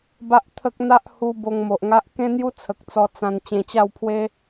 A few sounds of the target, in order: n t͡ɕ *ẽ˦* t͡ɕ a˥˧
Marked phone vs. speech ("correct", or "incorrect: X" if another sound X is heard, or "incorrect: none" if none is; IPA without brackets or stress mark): incorrect: ẽ˧